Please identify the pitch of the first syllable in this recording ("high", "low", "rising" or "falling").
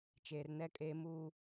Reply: low